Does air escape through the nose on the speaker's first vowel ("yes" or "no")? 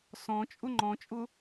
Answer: yes